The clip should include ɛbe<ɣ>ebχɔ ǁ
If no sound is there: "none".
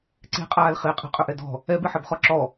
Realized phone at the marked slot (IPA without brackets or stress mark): ħ